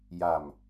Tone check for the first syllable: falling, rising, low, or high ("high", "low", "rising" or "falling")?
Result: low